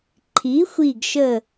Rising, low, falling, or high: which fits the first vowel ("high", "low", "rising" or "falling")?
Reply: rising